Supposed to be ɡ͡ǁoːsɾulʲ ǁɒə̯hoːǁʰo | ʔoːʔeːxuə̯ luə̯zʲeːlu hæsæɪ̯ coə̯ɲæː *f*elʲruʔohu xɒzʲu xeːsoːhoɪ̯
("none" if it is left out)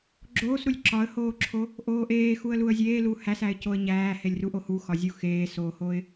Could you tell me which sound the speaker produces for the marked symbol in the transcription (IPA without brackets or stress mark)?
h